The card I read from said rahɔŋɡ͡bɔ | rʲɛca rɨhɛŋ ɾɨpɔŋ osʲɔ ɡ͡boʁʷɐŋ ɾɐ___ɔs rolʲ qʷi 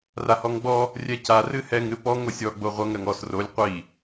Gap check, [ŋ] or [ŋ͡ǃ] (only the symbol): ŋ